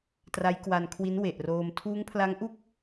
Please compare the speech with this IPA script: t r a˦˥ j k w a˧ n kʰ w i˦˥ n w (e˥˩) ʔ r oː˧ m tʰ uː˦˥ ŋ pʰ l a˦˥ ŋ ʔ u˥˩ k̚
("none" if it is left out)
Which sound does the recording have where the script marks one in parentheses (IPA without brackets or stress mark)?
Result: e˨˩